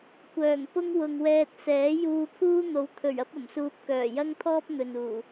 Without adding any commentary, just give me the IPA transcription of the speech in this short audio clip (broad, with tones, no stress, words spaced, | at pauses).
kʷœː˨˩ŋpʊ˥ŋwʊ˨ŋwɛː˧t̚ sɛː˨˥ juː˧pʰuː˥n̪o˨˥wt̪ʰɵ˨˩ɥ ɐ˥p̚ɐ˨˩msuː˧p̚ kœː˨˩jɐ˥ŋt̪ʰɔː˥p̚ n̪ɵ˨nuː˨˩